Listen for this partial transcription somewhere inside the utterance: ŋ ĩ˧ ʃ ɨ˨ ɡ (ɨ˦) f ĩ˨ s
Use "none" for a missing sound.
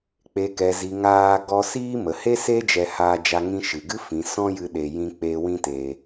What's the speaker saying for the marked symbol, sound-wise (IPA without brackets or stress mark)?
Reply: ɨ˦